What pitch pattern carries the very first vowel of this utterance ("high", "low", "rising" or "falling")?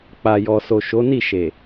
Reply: low